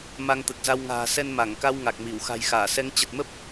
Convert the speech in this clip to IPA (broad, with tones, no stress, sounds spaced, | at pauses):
m a˧ ŋ t̪ ə˨˩ t̚ z a˧ w ŋ a̤ː˨˩ s ɛ˧ n m a˧˩ ŋ k a˧ w ŋ a˨˩ k̚ m i˧˩ w x a̤˨˩ j x aː˧˩ s ɛ˨˦ ŋ t͡ɕ ə˨˩ t̚ m ə˦˥ p̚